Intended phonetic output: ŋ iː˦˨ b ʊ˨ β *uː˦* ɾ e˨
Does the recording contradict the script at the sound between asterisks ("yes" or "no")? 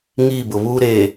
no